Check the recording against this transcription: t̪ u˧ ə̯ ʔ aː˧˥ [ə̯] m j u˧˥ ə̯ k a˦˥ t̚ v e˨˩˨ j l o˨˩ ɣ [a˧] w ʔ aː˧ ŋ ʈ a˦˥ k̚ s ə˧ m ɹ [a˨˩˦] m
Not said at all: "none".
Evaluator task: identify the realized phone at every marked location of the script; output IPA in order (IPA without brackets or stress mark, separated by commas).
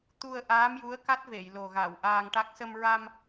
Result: none, a˨˩˨, a˧